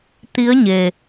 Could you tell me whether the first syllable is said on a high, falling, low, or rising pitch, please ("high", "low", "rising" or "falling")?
rising